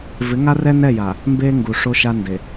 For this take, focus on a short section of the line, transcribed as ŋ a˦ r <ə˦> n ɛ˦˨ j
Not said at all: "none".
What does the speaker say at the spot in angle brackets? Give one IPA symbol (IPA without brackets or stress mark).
ɛ˦